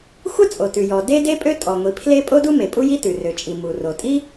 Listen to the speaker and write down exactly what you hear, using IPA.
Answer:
xʷə˥ t͡sʼo˩tʉ˩jɔ˩ de˥ de˥pʼø˥ tʼɔ˩ŋʷi˩ pʰle˥ pʼo˥du˥me˩ pʼu˥ji˥tʉ˩ rø˩t͡ʃʼi˩ mu˩ro˩tʼi˥

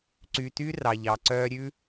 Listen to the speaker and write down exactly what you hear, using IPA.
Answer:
ǀy˧ty˥ rɑ˧ʎɑ˧ǀœ˥ ɾʲʉ˥

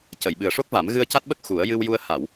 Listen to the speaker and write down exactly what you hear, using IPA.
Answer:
cə˨˩˨jɓɨ˨˩ə̯ʂo˦˥k̚va˨˩˦m ɣɨ˧ə̯ca˦˥t̚ɓə˦˥k̚ xu˨˩˦ə̯jɨ˧wju˧ə̯ ha˨˩˨w

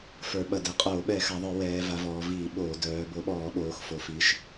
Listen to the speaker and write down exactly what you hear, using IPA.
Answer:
fə˞˧˩˧ɓɐ˧˩˧ dɛ˩˧qʼoː˧˩˧ ɓɛ˧˩˧xa˩˧ðˤə˞˧˩˧ wɛː˩˧va˩˧ vɔː˩˧viː˧˩˧ ɓoː˧˩˧ dœː˩˧bo˧˩˧ɓɔː˧˩˧ɓoː˩˧x fo˩˧fi˩˧ʃ

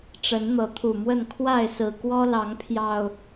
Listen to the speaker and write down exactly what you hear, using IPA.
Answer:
ʈ͡ʂə˨˦nn̪ɤ˨˦t̪ʰu˨˩mwə˥˨n kʰwa˥˨ɪ̯sɹ̩˨˩ kwɔ˦lɑ˨˦ŋpʰjɑ˨˩ʊ̯

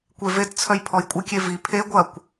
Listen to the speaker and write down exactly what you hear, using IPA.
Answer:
kʷevett͡sʰœj pʰɔjkʷʼɪkʲe vi pʰe ɡʷɐkʷ

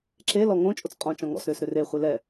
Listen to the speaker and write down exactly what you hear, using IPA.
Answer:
ǁe lɔŋõ t͡ʃʼot͡sqʼɔ̃ t͡ʃɔ̃ŋɔ̰s ɾʏːsɾʏre χʷelɛ

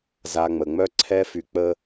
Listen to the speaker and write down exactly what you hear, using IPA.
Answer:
za˨ ŋ͡mə˨ŋ͡mœ˦ǀʰɛ˦fy˧ k͡pə˧

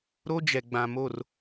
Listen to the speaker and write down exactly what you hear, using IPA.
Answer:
ɾo˦d͡ʒɛ˨ɡ͡bã˨ mo˦˨r

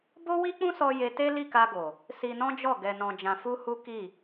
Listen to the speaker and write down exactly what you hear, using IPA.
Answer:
bo˦wi˦k͡pũ˦sɔ˧ je˧te˦ li˦˨ka˧ɡo˨ | si˧nɔ̃˦d͡ʒɔ˦˨ ɡɛ˧nɔ̃˧d͡ʒã˧ fu˦hu˦ ki˦˨

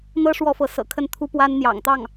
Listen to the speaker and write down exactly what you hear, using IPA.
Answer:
n̪ɤ˥ ʂwɔ˥fɤ˧˥ sɤ̰˨˩kʰə˥˩nt̪ʰu˥pwa˥n n̪jɑ̰˨˩ŋt̪ɑ˥˩ŋ

